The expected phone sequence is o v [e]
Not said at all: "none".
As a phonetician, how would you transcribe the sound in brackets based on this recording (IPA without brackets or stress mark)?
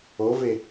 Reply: e